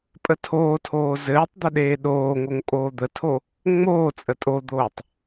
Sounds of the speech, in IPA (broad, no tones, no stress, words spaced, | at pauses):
pʼətʰoːtʰoː zɘːtˤ d̪əɗeːɗoːŋoŋ kʼoːd̪ətʰo | ŋ͡moː t͡sʼətʼod̪oːtˤ